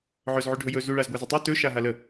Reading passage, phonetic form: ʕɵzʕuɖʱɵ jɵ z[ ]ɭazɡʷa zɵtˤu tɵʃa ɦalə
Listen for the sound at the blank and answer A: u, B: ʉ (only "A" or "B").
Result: A